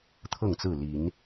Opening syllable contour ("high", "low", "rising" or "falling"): falling